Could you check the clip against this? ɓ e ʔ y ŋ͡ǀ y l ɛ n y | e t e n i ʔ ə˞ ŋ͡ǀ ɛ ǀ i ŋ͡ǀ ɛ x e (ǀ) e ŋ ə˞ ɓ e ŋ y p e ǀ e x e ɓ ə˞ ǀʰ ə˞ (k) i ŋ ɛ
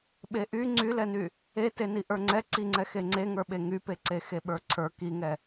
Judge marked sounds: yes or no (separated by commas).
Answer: no, yes